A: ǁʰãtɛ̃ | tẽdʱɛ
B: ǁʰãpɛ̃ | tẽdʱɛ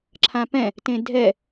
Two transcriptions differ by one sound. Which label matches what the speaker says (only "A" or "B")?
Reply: B